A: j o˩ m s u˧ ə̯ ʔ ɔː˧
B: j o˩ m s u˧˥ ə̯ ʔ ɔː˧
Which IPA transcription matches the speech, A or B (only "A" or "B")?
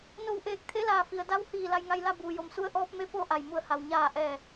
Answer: A